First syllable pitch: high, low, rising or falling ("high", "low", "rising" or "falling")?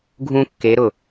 high